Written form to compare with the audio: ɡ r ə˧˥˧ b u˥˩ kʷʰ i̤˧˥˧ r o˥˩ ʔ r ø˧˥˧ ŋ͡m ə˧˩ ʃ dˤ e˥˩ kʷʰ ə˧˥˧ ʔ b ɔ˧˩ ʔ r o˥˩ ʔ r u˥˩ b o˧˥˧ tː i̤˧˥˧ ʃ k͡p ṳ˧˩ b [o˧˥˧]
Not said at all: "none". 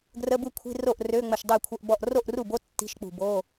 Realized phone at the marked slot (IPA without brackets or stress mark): o˧˥˧